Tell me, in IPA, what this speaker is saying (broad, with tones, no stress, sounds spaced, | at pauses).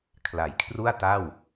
kʰ l a˩˦ j kʰ r u˥˩ a̯ t a˥˩ w